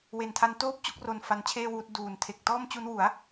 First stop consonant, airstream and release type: aspirated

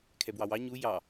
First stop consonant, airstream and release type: aspirated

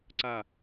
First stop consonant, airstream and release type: click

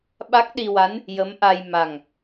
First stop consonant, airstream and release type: implosive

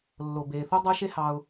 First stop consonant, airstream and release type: plain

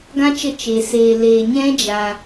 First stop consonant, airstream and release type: plain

